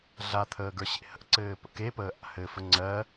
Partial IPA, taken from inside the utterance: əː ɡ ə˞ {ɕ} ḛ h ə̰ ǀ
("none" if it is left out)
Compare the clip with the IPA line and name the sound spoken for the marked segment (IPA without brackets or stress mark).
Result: ɕ